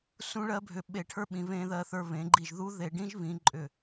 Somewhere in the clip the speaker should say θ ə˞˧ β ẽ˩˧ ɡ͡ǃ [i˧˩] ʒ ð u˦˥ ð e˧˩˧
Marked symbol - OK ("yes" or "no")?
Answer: yes